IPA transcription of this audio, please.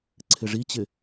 ǀʰɪʐit͡ɕɪ

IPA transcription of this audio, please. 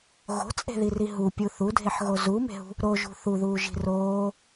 ɣo̤t͡sʼe̤ðiri ɦupʲu θudʱeħɣo zume̤ɦṳ | ɾoʒṳ θuðuːʒi̤ roː

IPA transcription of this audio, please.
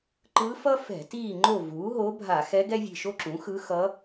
ǃɯ˧˥fʌ˥ fɛ̤˧˩˧tiː˦˨ ŋ͡ǃo˦˨vuː˩˥ɦo˧˥ bʱa˧˩˧xɛ˧˥ ɡɛ˥vʲe̤˦˨ʃo˥ǁũ˩˥ xɯ˧˥ xʌ˧˥

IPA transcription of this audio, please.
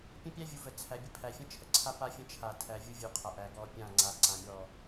pʲə̃˦pʲæ˦vʲu˨və˨ t͡sʰæ˨bʲə˦pʰæ˨fʲə̃˦ t͡ʃʰə˨ǀʰa˦pa˦fʲə̃˦ t͡ʃʰa˦˨tʰæ˦ vʲu˦vʲu˨qʰa˨ ʔæ˨ɡɔ˦˨pʲã˦˨ ŋ͡ǀa˨ ǀã˨mʲɔ˦˨

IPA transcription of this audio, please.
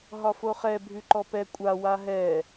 ɦɒfoχɛ bʱʉǃɔpɛ kʷʼa waɦɛ

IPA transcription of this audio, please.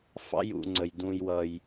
fɑ̰˥jṵ˨ŋ͡ǀə˩j dũ˨jwʌ˩j

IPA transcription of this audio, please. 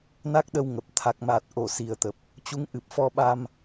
na˦˥k̚ɗə˧w ŋə˨˩p̚ t̪ʰa˨˩k̚maː˨˩t̚ʔo˧˩ si˨˩ə̯t̪ə˨˩p̚ | t͡ɕu˨˦ŋʔɨ˨˩p̚ fɔ˧ɓa˧m

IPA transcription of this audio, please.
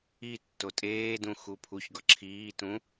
i tːotʼeːdũ xupʰuçɡɒ ǁʰiːtũ

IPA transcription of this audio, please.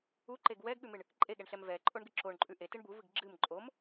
uǃeɡ wɛɡɠʉmɨɳ | ǃʼeɠɛɳɬɛm vɛǃʼoɳɡɨ ǁoɳǃʼʉ ʔetɨɳ buvɨɡ ɡ͡ǁɨm ǃʼom

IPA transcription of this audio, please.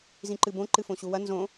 zĩǃɨbõ ǃɨfõɕuwɐ nzõ

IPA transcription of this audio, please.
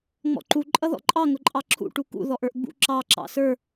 ŋ͡mɔ̰ǃu ǃʼʌðɔ̰ǃʼɑ ŋʊǃʼɑǁʰṵ ʈukṵ ðɔʔə˞ʔɡ͡bṵ ǁɑ ǁɑ̰sə˞

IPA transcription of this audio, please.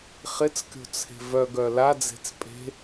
χɪt͡skʲo̤t͡sʰe̤ vœɡœ lad͡ze̤t͡s pʼe̤

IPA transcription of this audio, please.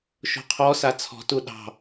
ʃo̤qʰɔsa t͡sʰɔ̤tu ɗɑ̤

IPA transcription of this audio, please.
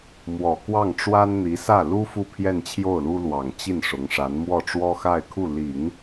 mwɔ˨˩kwɑ˥˩ŋʈ͡ʂwa˥n n̪i˧˥sä˥˩ lu˥ fu˥˧pʰjɛ˥˧nt͡ɕʰjo˥˩ʊ̯lu˥ lwɑ˨˩ŋ t͡ɕi˥˩n ʂʊ˧˥ŋʂa˧˥n mwɔ˥˩ʈ͡ʂwɔ˥xa˥˧ɪ̯kʰu˥˩ li˨˩˦ŋ

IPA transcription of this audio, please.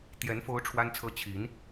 t̪jɛ˧˥n fo˥ʊ̯ʈ͡ʂʰwa˥nt͡sʰɤ˥ t͡ɕʰi˧˥n

